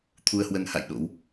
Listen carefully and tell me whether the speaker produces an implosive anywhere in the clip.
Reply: yes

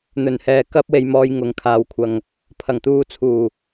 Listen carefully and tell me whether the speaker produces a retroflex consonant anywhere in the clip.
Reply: no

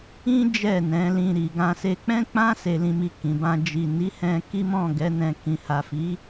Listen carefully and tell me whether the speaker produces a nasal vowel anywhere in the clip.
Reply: yes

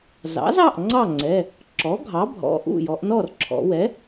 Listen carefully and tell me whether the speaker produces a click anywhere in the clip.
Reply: yes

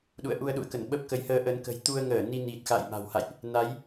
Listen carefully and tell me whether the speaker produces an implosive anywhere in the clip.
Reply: yes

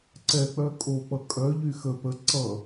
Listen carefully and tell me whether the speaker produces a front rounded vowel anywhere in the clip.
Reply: yes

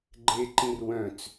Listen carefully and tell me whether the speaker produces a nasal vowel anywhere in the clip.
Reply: yes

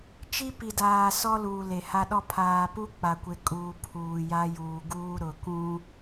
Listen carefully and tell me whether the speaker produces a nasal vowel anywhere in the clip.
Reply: yes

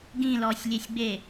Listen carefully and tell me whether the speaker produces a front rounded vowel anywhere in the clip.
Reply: no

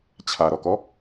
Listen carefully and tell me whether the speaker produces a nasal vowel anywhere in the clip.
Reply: no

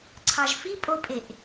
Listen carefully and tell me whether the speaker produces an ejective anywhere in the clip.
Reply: yes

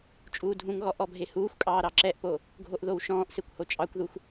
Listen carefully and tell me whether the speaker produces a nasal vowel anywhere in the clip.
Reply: yes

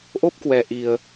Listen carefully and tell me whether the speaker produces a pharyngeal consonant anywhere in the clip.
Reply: no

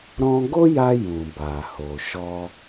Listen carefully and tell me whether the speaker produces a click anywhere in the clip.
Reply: no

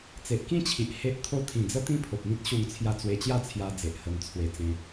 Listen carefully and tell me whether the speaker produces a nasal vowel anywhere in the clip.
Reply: yes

